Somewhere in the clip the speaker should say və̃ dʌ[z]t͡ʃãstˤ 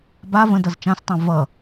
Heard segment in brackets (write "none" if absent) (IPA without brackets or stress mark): z